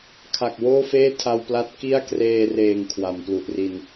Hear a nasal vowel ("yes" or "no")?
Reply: no